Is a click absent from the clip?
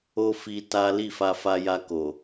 yes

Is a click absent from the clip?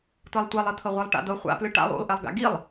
yes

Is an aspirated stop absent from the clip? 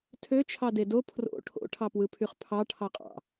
no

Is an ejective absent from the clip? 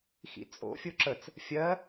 no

